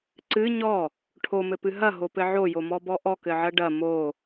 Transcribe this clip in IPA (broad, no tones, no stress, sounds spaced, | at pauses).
ǀ ɨ ɲ ɔ | ʈʰ o m ɘ p ɨ ɦ ɐ ɦ o p ɘ ʕ o j o m ɔ b ɔ ʔ ɔ k ɘ ʕ ɐ ɖ ɐ m o